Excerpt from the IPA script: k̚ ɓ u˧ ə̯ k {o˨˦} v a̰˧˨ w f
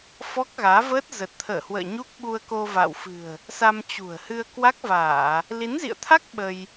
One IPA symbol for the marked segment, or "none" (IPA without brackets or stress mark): o˧